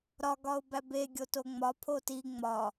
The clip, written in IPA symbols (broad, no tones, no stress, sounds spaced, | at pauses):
ɾ ɒ ɡ ɒ ʊ̯ b æ b e ɡʲ o t o ŋ͡m ɒ pʰ o t i ŋ͡m ɒ